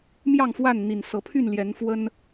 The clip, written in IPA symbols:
m j ɑ˥˨ ŋ f w a˥˨ n n̪ i˨˩ n s ɤ˨˦ pʰ y˥˨ n l j ɛ˨˦ n f w ə˦ n

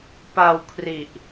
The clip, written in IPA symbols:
p a˧ w kʰ r i˨˩ ʔ

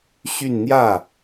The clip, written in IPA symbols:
ɕ y˥˧ n n̪ j ä˥˩

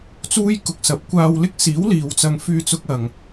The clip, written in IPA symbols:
t͡s uː˥ j k ʊ˨ k̚ s ɐ˨˥ p̚ kʷ aː˧ w l ɪ˥ k̚ s iː˨˥ w l iː˨ w t͡s ɐ˧ ŋ f yː˧ t͡s ʊ˧ k̚ ɐ˨ ŋ

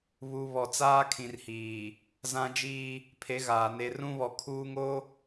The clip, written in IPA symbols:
β u˨ β ɔ˨ t͡s aː˦ kʰ ĩ˨ r h iː˨ | z ã˦ d͡ʒ iː˦ | pʰ e˨˦ ɣ aː˨ n e˨ r ũ˦ β ɔ˨ kʰ uː˦ ŋ o˦

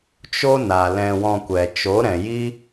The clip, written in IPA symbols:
t͡ʃ o˦ n a˨ l ɛ̃˧ w ɔ̃˧ kʷ ɛ˨ t͡ʃ o˨˦ ɾ ɛ̃˨ j i˦

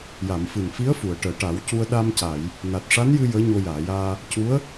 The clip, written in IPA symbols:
j a˨˩˨ m f ɨ˨˩ n f i˧˥ ə̯ f u˨˩˨ ə̯ ʈ əː˨˩˨ ʈ a˨˩˦ w c u˧ ə̯ ɗ a˧ m c a˨˩˨ j | n a˨˩ t̚ ʂ a˧˥ n j ɨ˧ j əː˧˥ ɲ o˧ j aː˨˩˨ j aː˧ | c u˧˥ ə̯

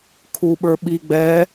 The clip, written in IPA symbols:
kʰ u ɓ ə˞ ɓ i ɡ͡b ɛ

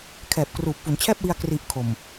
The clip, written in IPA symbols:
kʰ ɛː˨˩ p̚ k r uː˨˩ p̚ f u˩˦ n t͡ɕʰ ɛː˥˩ p̚ w i˧ a̯ k r i˨˩ ʔ kʰ o˨˩ m

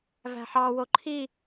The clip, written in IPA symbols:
v æ̤ ħ ɑ w o ǃʰ i

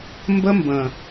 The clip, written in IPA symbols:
m b ə˦ m b ə̃˨

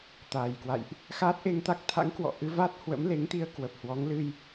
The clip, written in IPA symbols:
t̪ aː˨˩ j k w a̰˧˨ j ʔ | x aː˦˥ t̚ ʔ e˧ ŋ t̪ a˦˥ k̚ t̪ʰ a̰˧˥ ŋ k w ɔ̰˧˨ ʔ ɨ˧ v a˦˥ t̚ h w ə̰˧˥ m l e˨˦ ŋ t̪ i˧ ə̯ k w ə˨˩ p̚ h w ɔ˨˦ ŋ l ɨ˧ j

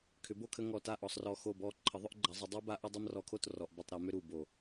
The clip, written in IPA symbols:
kʰ ʏ˨˦ b o˥˨ kʰ ə˦ ŋ ɔ˧˩ t a˥˨ ʔ ɔ˧˩˧ sˤ r ɔ˧˩ x o˧˩ b ɔ˧˩ ǃʰ ə˨˦ ðˤ ʏ˦ ʔ ɡ͡ǃ a˨˦ zˤ ə˨˦ dˤ u˦ b a˦ ʔ ʏ˦ dˤ o˦ m r ɔ˧˩ kʰ o˥˨ t r ɔ˩ ʔ b ʏ˧˩ tˤ ɾ o˧˩˧ m ʏ˦ ɾ u˧˩ b o˧˩˧

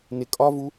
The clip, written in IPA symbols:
n ɪ kʼ ɒ v u

